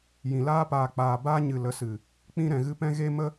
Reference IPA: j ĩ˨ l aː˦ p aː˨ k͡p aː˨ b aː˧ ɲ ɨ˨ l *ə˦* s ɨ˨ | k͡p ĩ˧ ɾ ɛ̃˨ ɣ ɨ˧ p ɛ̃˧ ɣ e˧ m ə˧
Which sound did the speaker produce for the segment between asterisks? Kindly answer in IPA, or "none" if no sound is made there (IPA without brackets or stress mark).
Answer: ə˨˦